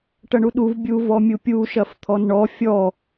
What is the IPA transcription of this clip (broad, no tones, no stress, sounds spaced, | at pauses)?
ʈ ɐ ɳ u ɗ u v bʲ u v ɔ mʲ u pʲ u ʃ ɐ f t̪ʰ ɔ n ɳ ɔ fʲ ɔ